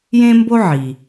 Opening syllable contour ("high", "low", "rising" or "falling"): high